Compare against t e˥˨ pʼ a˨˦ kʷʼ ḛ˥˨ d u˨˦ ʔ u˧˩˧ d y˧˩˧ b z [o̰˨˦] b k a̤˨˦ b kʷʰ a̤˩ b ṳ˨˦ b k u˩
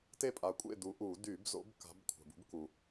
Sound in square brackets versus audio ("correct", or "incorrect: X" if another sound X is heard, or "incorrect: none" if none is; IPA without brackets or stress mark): correct